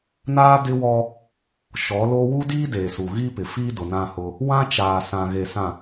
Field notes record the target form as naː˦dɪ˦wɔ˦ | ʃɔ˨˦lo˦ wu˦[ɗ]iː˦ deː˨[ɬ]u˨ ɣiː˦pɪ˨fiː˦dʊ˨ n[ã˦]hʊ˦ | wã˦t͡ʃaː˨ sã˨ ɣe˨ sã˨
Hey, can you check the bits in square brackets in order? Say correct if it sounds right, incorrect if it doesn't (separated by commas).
incorrect, incorrect, correct